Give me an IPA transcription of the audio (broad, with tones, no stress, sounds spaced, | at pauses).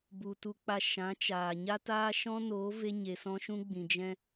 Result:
b u˨ t u˧ k͡p a˧ ʃ ã˨˦ t͡ʃ aː˨ ɲ a˦ t aː˦ ʃ ɔ̃˦ n oː˨˦ v e˦ ɲ e˨ s ɔ̃˦ ʃ ũ˦ ɡ͡b ĩ˨ d͡ʒ ɛ̃˦